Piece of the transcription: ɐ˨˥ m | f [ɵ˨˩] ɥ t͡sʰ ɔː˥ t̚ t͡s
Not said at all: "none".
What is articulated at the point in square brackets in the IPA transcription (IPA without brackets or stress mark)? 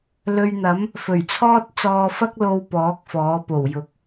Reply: ɵ˨˩